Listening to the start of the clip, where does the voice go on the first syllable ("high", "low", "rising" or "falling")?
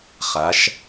rising